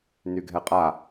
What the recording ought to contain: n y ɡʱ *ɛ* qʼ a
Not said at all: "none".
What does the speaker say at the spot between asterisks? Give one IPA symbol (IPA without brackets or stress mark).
ɛ